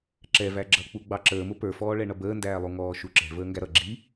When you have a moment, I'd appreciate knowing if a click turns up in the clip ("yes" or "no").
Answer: yes